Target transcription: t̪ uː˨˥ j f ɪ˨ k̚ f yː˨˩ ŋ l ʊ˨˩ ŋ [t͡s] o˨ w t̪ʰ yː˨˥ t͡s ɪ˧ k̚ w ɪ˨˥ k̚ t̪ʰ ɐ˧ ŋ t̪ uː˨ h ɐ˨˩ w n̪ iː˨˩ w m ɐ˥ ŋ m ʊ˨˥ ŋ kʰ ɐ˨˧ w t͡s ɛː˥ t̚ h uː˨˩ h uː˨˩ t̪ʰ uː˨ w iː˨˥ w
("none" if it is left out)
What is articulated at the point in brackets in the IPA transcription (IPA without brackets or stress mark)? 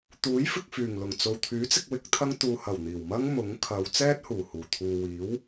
t͡s